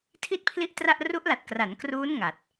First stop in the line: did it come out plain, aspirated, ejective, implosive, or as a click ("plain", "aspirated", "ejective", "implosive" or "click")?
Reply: aspirated